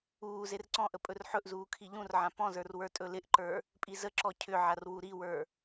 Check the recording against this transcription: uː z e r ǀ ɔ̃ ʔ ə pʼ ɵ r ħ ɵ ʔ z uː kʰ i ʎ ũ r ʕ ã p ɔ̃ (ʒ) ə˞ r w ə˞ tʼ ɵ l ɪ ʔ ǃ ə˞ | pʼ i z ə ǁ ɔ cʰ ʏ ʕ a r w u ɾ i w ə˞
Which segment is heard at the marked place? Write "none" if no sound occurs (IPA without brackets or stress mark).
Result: z